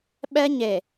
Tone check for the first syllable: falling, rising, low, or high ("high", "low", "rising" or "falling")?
high